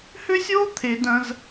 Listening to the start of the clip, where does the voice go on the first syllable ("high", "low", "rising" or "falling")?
high